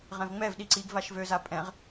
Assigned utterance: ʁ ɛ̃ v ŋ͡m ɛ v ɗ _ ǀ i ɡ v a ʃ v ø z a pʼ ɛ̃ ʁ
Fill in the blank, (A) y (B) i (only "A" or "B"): B